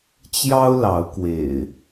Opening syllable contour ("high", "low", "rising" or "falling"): high